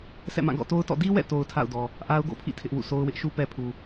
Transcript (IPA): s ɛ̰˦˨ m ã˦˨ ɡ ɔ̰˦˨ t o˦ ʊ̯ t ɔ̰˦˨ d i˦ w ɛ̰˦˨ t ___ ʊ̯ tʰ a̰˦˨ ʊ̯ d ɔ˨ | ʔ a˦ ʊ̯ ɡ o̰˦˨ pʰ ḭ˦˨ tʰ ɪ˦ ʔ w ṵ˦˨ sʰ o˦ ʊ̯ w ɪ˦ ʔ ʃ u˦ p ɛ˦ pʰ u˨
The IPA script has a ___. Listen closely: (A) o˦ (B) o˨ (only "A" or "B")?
B